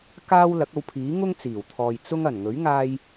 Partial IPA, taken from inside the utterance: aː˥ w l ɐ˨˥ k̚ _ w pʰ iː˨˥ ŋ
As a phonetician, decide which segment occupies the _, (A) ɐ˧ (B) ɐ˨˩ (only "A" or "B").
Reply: A